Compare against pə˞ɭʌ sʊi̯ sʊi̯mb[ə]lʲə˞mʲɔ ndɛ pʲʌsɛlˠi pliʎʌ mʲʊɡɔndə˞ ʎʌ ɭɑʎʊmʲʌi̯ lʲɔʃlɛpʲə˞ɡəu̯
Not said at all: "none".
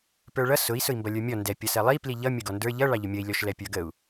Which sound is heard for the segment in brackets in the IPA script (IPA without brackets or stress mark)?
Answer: ʌ